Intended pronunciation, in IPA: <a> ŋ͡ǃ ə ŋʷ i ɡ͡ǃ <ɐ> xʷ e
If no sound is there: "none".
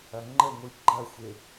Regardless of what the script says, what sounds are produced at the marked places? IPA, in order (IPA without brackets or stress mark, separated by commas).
ɐ, ɐ